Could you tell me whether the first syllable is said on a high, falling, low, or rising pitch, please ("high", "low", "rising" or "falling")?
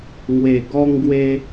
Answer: low